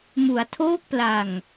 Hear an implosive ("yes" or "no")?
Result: no